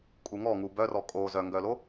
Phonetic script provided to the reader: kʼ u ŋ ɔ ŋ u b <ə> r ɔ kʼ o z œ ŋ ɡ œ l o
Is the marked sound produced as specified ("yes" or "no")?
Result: no